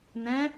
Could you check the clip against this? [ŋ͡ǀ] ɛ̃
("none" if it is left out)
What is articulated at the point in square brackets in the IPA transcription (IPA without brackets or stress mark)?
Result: n